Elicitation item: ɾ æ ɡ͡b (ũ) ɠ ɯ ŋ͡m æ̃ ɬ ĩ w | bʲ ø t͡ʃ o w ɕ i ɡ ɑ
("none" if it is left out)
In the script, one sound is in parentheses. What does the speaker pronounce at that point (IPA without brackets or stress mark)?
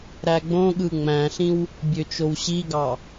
õ